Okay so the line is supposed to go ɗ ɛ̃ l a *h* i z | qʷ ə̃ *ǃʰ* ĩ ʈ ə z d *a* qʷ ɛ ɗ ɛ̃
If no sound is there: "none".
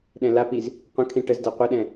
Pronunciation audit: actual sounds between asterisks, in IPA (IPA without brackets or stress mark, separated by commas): p, kʰ, a